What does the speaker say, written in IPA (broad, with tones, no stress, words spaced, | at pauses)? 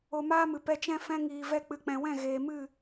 o˧maː˦mɨ˨ pɛ˧t͡ʃɛ̃˦ fɛ̃˧ŋiː˨vɛ˧ k͡pɨ˨k͡pɛ̃˨wɛ̃˦˨ ɣeː˨mɨ˦˨